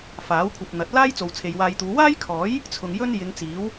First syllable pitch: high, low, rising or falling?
rising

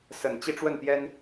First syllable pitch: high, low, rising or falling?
low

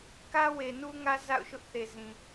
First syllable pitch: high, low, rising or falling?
high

